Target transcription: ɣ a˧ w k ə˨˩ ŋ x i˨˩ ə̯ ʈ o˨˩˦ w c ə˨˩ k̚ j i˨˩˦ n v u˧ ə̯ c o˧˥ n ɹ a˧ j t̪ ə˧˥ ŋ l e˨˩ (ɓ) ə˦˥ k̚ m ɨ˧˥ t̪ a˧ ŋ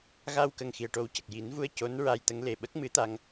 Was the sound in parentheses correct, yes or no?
yes